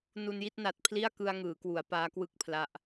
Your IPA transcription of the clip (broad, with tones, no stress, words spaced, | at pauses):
nu˧nji˥˩t̚na˨˩t̚ pʰli˥˩a̯kɯ˧a̯ŋɯː˩˦kwu˩˦a̯ paː˦˥kwɯ˥˩k̚pʰla˦˥ʔ